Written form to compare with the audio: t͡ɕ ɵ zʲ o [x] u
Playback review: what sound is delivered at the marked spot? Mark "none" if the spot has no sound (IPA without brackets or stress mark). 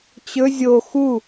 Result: x